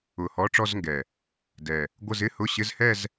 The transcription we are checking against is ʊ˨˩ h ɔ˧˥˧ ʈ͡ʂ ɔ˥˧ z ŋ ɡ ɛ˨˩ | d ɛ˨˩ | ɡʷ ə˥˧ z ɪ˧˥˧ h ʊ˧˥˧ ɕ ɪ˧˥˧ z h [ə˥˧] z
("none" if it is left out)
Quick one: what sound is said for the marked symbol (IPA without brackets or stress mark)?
ɛ˥˧